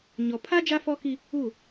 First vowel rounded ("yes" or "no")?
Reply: yes